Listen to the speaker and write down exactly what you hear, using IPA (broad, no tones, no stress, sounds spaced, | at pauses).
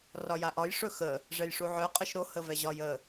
r ɒ j a ʔ ɒ j ʂ ɵ x ə | ʐ ɛ j ʂ u ʕ œ qʼ ə ʃ ɾ o h ə v ɛ ʑ ɒ j ə